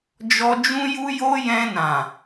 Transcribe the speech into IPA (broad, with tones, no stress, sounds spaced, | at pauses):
d͡ʒ ɔ˧ d͡ʒ ũ˧ j u˧ j o˧ j ɛ̃˧ n ã˨